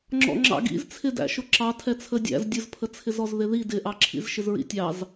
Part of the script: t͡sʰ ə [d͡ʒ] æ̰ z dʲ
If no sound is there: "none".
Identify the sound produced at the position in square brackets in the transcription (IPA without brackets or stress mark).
dʲ